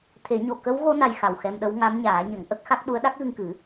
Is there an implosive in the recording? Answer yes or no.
yes